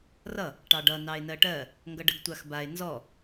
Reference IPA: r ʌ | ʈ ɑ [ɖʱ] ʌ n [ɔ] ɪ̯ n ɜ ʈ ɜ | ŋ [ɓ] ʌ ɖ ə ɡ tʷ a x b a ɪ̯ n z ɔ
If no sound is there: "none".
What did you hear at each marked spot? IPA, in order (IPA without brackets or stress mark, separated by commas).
ɖ, ɑ, ɡ